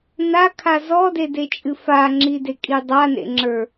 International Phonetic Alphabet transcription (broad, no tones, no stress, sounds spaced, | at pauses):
n a kʰ a z ɔ d e d e t͡ʃʼ ɨ f a ŋ͡ǁ i d e kʼ i dˤ a n ḛ ŋ͡ǁ ə˞